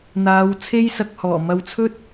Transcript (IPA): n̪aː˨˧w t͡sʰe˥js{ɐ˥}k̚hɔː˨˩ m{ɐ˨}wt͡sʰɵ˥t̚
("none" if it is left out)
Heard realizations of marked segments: ɐ˨, ɐ˨

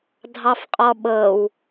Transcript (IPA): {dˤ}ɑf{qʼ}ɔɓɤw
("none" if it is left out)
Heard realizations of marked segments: dʱ, qʼ

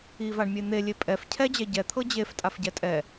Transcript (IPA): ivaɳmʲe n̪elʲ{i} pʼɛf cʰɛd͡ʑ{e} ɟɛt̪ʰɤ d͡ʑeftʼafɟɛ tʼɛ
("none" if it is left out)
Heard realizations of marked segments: e, ɛ

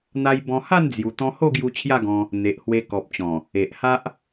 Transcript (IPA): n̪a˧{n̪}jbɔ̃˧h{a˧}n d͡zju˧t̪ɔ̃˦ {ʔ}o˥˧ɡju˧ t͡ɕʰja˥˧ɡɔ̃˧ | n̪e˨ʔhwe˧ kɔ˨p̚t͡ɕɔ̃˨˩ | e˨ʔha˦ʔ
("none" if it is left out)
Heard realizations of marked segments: none, a˥˧, h

